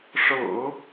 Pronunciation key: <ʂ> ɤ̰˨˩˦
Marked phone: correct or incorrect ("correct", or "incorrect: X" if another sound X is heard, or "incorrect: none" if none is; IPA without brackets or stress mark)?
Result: correct